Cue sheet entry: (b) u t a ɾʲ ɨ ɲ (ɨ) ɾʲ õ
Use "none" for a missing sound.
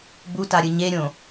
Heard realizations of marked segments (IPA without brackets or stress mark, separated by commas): b, e